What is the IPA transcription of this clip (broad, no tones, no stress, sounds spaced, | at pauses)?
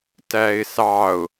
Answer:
t æ ɪ̯ s ɑ ʊ̯